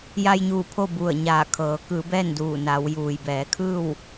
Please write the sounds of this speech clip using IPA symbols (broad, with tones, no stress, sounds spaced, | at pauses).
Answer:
j a˧ j ɲ uː˧˩ pʰ o˥˨ b u˧˩ ə̯ ɲ aː˧˩ kʰ ɤː˩˧ k ɯː˩˧ b ɛː˥˨ n d uː˧˩ n a˩˧ w j uː˩ j b ɛː˩˧ kʰ ɯː˥˨ w